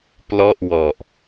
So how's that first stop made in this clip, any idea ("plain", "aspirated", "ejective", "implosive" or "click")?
plain